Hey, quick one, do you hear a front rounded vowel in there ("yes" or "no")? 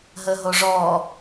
no